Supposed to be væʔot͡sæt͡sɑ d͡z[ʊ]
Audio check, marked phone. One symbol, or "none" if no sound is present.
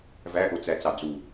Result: u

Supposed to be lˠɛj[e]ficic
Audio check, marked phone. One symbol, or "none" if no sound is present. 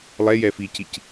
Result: ɛ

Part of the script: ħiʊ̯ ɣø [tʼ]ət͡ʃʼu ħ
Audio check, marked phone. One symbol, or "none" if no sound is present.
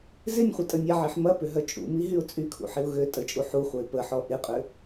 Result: tʼ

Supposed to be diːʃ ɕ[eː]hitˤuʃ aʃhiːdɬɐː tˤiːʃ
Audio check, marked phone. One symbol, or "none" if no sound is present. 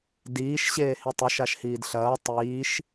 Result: eː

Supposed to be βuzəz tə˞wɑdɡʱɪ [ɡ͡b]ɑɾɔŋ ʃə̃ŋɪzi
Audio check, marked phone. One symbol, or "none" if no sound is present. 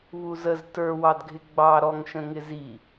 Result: ɡ͡b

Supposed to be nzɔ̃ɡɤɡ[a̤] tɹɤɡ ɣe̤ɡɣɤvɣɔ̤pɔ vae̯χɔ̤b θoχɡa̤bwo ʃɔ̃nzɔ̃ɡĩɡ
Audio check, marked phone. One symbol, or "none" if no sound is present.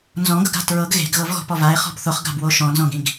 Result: a̤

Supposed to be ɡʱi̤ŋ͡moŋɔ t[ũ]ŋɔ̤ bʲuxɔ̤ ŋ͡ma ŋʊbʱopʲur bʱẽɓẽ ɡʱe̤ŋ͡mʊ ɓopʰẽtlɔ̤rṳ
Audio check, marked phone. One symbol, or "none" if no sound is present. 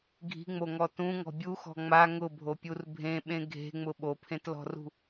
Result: ũ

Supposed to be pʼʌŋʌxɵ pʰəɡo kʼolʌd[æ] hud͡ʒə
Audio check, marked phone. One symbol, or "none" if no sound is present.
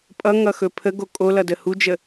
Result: ə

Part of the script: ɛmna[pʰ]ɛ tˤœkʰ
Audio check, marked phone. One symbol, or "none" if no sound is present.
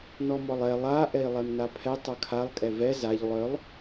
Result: pʰ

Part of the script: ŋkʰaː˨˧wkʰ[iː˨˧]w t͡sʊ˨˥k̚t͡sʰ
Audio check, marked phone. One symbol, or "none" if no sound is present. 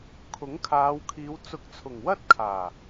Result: iː˨˧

